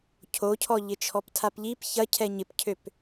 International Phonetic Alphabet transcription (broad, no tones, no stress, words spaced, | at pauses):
cʰocʰɔ ʎɪt͡ʃʰɔptʰapʎip çɐ cʰɛɲɪpcʰøp